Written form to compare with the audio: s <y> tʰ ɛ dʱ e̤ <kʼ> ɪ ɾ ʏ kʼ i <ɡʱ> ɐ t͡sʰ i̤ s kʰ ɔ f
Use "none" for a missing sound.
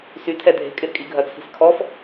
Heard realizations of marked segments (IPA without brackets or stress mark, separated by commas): y, kʼ, ɡʱ